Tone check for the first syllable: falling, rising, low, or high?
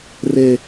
low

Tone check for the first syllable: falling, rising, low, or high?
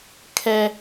high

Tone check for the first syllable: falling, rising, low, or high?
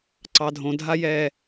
low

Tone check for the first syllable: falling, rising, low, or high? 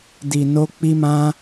low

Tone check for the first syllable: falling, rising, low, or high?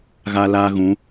high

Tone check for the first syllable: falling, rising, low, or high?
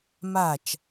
falling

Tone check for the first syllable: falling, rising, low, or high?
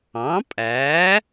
rising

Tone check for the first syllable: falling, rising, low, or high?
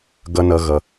high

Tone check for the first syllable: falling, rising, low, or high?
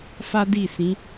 high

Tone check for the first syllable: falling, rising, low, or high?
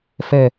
low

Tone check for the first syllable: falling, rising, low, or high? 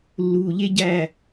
low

